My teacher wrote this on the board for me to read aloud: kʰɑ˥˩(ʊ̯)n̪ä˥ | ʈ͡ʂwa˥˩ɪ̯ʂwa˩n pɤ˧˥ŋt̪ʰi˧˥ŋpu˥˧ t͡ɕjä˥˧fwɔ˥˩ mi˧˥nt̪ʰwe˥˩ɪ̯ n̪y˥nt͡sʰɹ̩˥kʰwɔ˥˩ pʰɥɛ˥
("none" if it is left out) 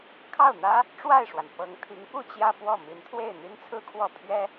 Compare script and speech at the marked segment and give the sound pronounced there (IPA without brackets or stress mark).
ʊ̯